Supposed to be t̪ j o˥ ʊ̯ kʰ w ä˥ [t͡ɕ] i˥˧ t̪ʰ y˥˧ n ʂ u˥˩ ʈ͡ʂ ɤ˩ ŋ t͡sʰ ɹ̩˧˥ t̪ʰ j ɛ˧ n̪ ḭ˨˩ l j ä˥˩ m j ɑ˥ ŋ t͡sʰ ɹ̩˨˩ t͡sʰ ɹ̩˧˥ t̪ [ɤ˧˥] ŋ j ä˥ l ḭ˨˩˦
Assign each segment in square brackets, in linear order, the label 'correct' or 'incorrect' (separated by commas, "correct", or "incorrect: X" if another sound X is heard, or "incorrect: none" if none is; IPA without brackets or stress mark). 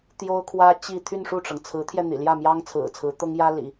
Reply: correct, incorrect: ɤ˥